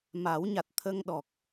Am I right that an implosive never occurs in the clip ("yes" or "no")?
no